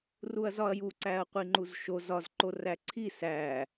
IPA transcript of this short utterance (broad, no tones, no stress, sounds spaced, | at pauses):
r u ɐ̯ z ɒ ɐ̯ j u ǀ æ ɐ̯ qʷ i ŋ͡ǃ u z ʃ o z ɒ z ǃ o r æ ǀʰ i s æ